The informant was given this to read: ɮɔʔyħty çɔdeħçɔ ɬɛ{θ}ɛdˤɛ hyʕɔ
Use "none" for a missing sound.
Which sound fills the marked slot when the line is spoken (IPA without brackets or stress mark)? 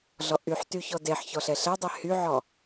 ɬ